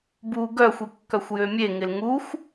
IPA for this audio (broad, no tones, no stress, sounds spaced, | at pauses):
b u ɡ œ xʷ i kː œ xʷ j ø mʲ e ŋ ɪ l ŋ u xʷ